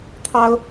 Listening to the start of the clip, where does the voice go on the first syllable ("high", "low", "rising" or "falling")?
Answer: high